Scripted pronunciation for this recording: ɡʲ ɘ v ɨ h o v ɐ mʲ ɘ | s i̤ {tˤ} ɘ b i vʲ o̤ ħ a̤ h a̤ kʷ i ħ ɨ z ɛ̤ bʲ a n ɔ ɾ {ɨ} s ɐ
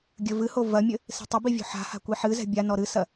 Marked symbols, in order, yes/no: yes, yes

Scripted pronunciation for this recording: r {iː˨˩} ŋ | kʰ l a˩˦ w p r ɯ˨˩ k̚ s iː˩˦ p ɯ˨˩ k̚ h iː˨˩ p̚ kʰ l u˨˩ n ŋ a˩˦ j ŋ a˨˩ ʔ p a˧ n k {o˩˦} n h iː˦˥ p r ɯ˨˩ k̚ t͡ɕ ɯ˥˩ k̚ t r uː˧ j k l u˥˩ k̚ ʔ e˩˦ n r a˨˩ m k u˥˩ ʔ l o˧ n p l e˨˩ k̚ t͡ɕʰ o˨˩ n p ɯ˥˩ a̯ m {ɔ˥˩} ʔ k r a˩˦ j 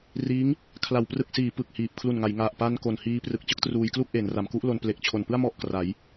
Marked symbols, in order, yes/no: no, no, yes

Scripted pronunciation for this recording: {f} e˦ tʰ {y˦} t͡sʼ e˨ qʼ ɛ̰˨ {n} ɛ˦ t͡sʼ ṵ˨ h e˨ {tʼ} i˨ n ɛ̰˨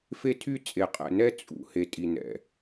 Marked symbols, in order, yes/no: yes, yes, yes, yes

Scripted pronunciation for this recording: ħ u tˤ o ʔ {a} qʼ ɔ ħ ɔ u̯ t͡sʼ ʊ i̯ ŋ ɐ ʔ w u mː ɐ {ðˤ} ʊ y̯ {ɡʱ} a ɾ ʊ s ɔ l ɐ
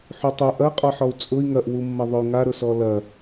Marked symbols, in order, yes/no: no, yes, no

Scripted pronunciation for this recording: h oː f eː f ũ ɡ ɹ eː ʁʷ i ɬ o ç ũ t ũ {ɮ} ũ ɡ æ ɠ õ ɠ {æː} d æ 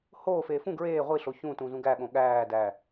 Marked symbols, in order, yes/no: no, yes

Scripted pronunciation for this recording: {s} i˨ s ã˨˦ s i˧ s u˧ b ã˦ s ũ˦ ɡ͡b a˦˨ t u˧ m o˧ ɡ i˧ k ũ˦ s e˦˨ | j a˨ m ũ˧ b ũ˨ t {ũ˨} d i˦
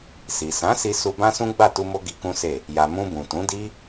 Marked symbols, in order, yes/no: yes, no

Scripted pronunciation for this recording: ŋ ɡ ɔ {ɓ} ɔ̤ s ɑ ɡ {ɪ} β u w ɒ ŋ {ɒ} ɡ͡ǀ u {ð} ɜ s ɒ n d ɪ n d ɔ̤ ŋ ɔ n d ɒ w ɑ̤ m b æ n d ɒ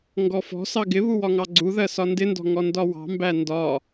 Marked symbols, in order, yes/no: no, yes, no, yes

